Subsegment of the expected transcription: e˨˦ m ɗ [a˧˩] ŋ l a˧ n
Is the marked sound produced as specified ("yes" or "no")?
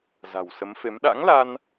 no